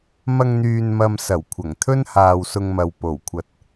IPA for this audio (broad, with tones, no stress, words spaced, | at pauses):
mɐ˧ŋn̪yː˨nmɐ˨m sɐ˨˩wkʷʰɐ˨˩ŋt̪ʰɵ˥nhaː˨w sʊ˧ŋmɐ˨w po˨˩wkʷʰɐ˧t̚